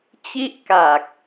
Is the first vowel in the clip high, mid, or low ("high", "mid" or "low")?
high